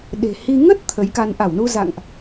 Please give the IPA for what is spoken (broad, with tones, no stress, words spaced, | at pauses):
ɗe̤˨˩hi˧ ŋə˦˥t̚ t̪ʰə˨˦jka˧n ʔa˧˩wnu˧za̰˧˨ŋʔ